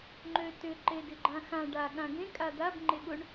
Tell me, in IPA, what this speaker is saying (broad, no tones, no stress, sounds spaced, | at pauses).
ŋ͡ǃ ø t ʏ ǃ e d ɪ ɡ͡ǃ ã x ã ɖ a ɠ ã ɡ ẽ kʼ a d̪ a b ŋ͡ǃ e ɠ ʊ ɳ